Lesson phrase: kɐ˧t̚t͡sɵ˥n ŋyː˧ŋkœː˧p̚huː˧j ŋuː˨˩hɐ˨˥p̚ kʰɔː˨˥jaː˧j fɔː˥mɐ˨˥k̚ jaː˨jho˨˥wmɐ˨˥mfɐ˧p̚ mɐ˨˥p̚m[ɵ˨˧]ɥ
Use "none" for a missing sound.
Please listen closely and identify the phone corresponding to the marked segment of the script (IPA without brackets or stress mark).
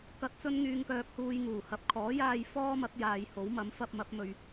ɵ˨˧